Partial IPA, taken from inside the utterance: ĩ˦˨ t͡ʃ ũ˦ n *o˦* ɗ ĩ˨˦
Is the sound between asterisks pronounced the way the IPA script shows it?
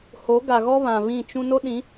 yes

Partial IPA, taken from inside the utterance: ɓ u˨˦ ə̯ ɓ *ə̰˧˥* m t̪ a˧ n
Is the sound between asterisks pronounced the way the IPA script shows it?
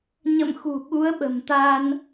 no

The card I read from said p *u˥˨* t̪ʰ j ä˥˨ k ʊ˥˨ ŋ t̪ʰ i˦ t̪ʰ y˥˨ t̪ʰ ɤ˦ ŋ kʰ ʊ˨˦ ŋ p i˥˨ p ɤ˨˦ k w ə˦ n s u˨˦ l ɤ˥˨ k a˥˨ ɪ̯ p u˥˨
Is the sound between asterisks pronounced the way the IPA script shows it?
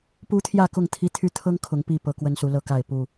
no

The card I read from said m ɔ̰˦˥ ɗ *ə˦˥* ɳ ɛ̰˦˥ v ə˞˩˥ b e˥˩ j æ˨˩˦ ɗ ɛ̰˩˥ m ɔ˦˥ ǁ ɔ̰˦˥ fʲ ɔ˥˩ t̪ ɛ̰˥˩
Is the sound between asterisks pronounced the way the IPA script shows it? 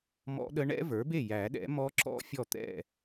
yes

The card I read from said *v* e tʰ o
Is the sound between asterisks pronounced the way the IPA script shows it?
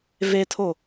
yes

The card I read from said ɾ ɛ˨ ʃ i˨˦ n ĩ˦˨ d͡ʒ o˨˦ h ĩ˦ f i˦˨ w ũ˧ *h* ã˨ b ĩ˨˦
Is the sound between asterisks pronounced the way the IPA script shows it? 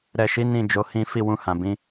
yes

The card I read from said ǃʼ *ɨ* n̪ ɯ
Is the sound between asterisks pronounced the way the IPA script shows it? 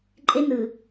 no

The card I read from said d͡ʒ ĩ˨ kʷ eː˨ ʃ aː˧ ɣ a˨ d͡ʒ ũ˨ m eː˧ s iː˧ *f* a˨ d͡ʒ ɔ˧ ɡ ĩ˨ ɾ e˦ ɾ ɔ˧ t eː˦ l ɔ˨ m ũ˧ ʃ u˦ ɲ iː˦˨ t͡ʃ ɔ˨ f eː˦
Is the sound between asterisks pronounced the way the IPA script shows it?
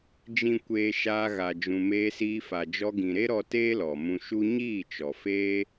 yes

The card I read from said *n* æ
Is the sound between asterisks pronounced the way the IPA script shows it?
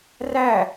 no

